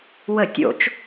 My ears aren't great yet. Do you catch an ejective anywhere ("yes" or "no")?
no